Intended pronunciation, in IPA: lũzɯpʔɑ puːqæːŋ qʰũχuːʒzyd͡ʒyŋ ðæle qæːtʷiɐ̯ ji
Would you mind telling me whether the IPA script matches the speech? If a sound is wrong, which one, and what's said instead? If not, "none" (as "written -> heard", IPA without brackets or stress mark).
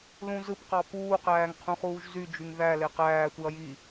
ʔ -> q